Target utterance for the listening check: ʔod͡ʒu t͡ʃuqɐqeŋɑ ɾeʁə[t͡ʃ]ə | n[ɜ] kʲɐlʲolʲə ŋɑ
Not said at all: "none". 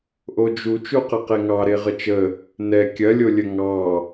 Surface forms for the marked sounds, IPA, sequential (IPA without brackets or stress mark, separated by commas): t͡ʃ, ɛ